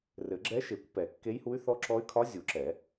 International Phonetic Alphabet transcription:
r ɘ˨˩˦ ɡ͡ǁ ɛ˧˥ ʃ e˨˩˦ kʷ p ɛ˨˩˦ kː e˧˥ j h u˧˥ y̯ θ ɔ˧˥ ǁ ɔ˧˥ y̯ kʰ ɒ˧˥ zʲ u˨˩˦ ǁ ɛ˨˩˦

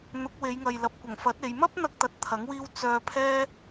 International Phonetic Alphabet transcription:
n̪ ʊ˨˥ k̚ w e˨˧ j ŋ ɐ˨ j l ɐ˨ p̚ kʷ ɐ˨˩ ŋ f ɐ˨˥ t̚ e˨˧ j m ɐ˥ p̚ n̪ ɐ˧ k̚ t̪ ɐ˧ t̚ t̪ʰ ɐ˨˥ ŋ w iː˥ w t͡s œː˧ pʰ ɛː˥

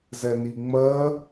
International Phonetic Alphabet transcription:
z ɛ n i ŋ͡m ɜ

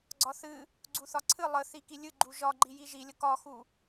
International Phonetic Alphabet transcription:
ɡ͡ǀ ɒ θ ɨ | ɡ͡ǀ u θ ɒ ǀʰ ɨ lˠ ə θ i k i lʲ ɨ ɡ͡ǃ u ʒ ɒ ɡ͡ǃ i j i ʒ i lʲ ə k ɒ x u

